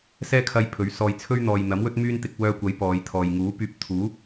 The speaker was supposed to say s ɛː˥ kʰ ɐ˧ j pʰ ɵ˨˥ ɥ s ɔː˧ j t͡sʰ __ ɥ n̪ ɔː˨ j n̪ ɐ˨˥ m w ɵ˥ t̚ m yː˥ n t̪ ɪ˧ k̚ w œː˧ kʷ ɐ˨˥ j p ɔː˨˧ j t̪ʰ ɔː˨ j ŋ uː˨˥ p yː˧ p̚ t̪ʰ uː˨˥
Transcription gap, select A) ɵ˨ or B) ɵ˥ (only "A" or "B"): B